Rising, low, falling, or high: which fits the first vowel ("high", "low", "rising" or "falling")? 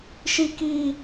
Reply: high